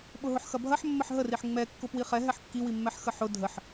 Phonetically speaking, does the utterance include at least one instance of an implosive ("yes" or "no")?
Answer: yes